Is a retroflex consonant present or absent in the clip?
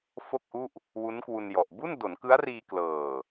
absent